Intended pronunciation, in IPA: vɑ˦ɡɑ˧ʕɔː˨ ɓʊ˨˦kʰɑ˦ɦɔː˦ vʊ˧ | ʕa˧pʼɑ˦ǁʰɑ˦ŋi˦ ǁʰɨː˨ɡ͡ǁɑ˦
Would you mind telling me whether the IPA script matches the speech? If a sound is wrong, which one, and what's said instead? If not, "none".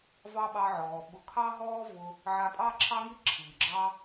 ɡ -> ɓ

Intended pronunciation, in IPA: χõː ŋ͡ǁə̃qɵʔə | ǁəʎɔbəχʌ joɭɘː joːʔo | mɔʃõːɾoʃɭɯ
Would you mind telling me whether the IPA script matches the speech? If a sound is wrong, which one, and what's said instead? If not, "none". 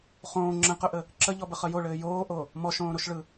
none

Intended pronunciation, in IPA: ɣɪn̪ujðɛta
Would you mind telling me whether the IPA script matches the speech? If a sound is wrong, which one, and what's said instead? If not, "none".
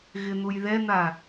t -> n̪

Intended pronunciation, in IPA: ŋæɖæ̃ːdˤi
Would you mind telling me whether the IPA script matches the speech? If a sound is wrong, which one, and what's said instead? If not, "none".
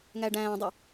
none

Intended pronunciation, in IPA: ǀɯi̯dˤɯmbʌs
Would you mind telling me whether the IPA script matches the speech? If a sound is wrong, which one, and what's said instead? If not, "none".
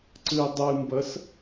none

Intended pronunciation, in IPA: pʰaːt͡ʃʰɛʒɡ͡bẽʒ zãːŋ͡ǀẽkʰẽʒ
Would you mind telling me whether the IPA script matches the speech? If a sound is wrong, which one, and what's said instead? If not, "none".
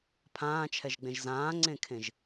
aː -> ãː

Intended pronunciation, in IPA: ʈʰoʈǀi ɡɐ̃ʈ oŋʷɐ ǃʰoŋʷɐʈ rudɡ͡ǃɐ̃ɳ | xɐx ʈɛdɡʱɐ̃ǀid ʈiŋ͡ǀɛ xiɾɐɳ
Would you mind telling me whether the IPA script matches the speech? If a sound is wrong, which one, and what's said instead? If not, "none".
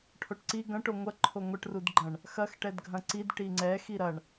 none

